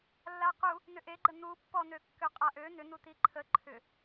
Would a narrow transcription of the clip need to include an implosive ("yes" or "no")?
no